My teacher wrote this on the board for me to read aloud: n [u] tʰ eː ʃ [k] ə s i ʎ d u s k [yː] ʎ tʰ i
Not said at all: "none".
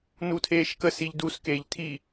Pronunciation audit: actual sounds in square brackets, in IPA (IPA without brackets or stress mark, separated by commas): u, k, eː